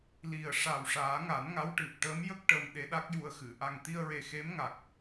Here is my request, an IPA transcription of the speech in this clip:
l i˨˩ ə̯ ʂ a˨˩ w ʂ aː˨˩˦ ŋ a˨˩˦ n ŋ a˧˥ w ʈ ɨ˨˩ p̚ ʈ əː˧˥ m j ə˦˥ k̚ ʈ ə˧ m ɗ e˧˥ ɗ a˦˥ k̚ j u˧ ə̯ x ɨ˨˩˨ ʔ a˨˩ ŋ t̪ i˧ ə̯ ɹ e˨˩ x e˧˥ m ŋ a˨˩ k̚

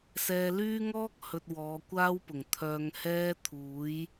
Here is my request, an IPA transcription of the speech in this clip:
s ɛː˧ l yː˥ ŋ ɔː˥ k̚ h ɵ˧ t̚ w ɔː˨˧ kʷ aː˥ w p ʊ˨˩ ŋ t̪ʰ œː˧ ŋ h ɛː˥ t̪ʰ uː˨˥ j

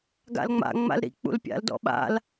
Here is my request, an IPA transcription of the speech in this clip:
ɡ a̰ l ŋ͡m a̰ ŋ͡m a̰ l ɾ ḭ k͡p ṵ l pʲ a̰ l d ɔ̰ ɓ a̰ l

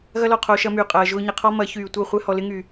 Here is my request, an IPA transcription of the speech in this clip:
ɣ ɐ˦ l ɔ˦˨ qʰ oː˧ ʃ ɐ˧ m yː˨ qʼ ɐː˨ ʒ ʊː˧ ɲ ɪ˨ qʰ ɔ˦ m ɐ˨˦ ç yː˨ tʷ ɐ˦˨ χʷ ɛ˧ h ɔ˨ l ɪ˧ ŋ y˨

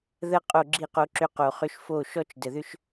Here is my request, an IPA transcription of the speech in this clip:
ð ə˦ qʼ o˦˨ ɡ͡ǁ i˦˨ q o˧ ǁ ʏ˧ q o˨ χ ʏ˧ ʃ f o˦˨ ʃ ɔ˦ t͡ʃ d ə˨ ð ʏ˦ ʃ

